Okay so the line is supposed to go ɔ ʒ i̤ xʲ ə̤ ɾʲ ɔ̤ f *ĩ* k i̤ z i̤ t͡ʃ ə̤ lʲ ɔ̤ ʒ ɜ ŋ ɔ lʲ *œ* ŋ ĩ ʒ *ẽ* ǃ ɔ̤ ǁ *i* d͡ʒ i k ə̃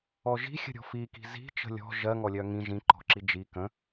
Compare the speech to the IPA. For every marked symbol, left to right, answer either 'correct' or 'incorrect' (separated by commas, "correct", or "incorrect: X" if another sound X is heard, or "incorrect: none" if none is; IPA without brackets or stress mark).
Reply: incorrect: i, correct, incorrect: ĩ, correct